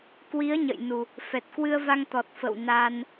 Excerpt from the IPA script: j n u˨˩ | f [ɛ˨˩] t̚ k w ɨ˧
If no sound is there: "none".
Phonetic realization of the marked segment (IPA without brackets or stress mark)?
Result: ɛ˨˩